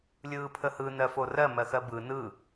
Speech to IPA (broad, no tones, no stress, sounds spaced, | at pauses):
lʲ ɯː pʰ ə h ɯ n ɜ f o r ɜ m ɜ x ɜ b ɯ n ɯ